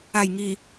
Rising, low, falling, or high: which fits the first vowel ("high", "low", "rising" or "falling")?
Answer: low